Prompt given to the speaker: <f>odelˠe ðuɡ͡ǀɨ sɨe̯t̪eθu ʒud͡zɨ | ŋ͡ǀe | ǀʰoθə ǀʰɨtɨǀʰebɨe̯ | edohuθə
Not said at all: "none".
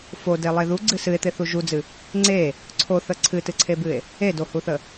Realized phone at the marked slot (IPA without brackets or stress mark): f